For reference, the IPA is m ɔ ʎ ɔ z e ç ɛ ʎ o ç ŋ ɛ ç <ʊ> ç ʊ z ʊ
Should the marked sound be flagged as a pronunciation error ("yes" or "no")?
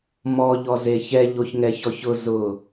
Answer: yes